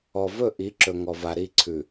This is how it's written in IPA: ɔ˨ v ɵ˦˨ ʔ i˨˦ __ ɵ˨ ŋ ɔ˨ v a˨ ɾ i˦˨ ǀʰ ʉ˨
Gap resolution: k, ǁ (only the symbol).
ǁ